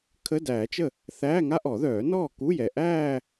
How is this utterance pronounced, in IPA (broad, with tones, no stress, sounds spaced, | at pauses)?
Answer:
kʰ ə˧˥˧ d æː˨˩˦ t͡ʃ ə˥˩ | θ æː˧˥˧ ŋ a˥ ʔ ɔ˨˩˦ ð œː˨˩˦ n ɔː˥˩ k u˧˥˧ j ɛ˨ ʔ æː˥˧